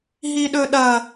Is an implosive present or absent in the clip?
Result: present